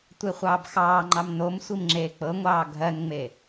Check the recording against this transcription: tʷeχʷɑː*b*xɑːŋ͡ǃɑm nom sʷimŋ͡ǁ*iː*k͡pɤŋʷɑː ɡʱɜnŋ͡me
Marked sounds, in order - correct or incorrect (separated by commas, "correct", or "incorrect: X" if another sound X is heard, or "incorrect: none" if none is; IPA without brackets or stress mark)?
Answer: correct, incorrect: eː